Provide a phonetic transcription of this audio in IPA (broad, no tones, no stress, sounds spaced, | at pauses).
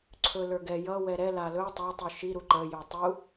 ǀʰ ɵ l ə˞ ɡ ɛ j ʌ w ɛ ɾ ɛ l a l ɵ tˤ ɛ tˤ u ʃ i ɾ u ǃ ə j ɵ tˤ u